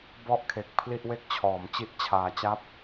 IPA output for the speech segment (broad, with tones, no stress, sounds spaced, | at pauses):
b ɔ˥˩ ʔ kʰ e˨˩ k̚ pʰ l i˥˩ ʔ w e˥˩ k̚ t͡ɕʰ ɔː˩˦ m t͡ɕ i˥˩ ʔ t͡ɕʰ aː˧ t͡ɕ a˥˩ p̚